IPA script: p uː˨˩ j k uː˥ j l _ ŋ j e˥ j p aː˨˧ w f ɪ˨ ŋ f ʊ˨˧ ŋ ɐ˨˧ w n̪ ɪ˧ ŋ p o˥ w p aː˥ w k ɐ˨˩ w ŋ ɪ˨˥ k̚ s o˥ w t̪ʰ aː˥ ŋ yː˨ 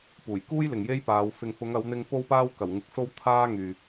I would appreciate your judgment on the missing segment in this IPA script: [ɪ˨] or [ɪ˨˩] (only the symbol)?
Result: ɪ˨